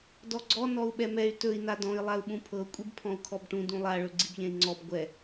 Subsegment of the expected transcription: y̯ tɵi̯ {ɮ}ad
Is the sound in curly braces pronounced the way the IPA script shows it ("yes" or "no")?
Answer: no